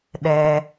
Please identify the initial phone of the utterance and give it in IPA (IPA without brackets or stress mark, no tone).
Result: ɗ